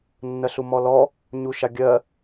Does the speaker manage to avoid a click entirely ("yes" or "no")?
yes